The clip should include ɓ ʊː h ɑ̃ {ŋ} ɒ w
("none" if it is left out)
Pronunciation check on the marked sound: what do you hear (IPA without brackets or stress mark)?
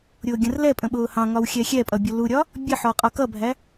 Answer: ŋ